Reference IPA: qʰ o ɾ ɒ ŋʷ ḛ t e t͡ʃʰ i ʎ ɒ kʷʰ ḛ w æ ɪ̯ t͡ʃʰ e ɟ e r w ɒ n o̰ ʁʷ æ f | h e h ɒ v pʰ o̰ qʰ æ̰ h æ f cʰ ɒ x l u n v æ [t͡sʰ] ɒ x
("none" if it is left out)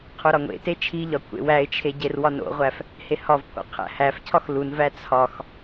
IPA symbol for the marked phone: t͡sʰ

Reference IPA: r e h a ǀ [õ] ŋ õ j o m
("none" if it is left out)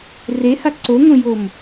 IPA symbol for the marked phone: o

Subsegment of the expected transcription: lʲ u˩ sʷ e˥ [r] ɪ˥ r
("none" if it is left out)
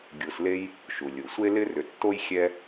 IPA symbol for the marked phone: l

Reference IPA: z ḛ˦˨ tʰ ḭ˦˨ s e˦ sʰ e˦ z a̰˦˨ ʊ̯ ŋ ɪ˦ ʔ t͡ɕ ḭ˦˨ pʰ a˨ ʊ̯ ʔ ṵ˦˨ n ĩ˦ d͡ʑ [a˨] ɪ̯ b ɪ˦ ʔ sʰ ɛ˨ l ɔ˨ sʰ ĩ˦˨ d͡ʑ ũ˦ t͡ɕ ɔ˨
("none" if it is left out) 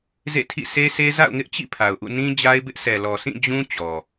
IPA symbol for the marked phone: a˦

